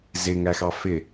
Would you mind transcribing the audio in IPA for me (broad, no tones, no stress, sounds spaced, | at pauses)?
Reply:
z ɪ ŋ æ x ɑ f ɪ